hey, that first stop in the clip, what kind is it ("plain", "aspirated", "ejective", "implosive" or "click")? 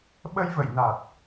implosive